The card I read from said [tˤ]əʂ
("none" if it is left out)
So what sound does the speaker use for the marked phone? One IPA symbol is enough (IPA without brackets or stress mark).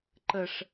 ǃ